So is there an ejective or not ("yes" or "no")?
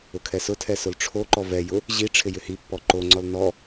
no